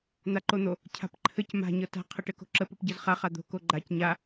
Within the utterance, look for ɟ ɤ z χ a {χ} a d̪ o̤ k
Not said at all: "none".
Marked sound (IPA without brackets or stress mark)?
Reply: χ